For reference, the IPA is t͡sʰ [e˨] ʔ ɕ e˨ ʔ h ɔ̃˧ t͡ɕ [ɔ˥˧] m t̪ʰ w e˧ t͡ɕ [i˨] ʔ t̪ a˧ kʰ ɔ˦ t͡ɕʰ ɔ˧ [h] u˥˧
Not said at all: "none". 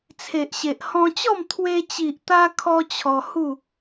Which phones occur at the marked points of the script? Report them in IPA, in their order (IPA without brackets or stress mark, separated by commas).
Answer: e˨, ɔ˥˧, i˨, h